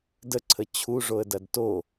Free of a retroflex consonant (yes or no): no